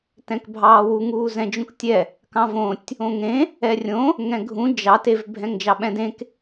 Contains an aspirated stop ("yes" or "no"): no